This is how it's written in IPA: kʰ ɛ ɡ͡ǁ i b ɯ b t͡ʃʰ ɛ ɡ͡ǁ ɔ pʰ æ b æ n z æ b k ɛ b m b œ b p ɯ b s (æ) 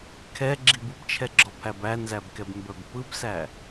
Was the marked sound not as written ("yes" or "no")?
no